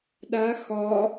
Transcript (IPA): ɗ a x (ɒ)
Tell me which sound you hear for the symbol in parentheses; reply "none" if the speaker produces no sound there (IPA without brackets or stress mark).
ɒ